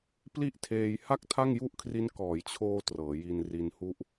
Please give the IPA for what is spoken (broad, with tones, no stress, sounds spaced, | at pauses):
p l i˥˩ ʔ tʰ eː˧ j h a˥˩ k̚ tʰ a˥˩ ŋ j u˥˩ ʔ kʰ r i˦˥ n k ɔː˩˦ j t͡ɕʰ oː˧ t r ɤː˩˦ j i˧ n r i˧ n h u˦˥ ʔ